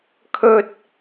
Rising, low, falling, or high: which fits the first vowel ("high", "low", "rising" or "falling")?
high